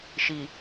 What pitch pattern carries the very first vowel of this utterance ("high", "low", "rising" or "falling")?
low